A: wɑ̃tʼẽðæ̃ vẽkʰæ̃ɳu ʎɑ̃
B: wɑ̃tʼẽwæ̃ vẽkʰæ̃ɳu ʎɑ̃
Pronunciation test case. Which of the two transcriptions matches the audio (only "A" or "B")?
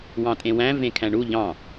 B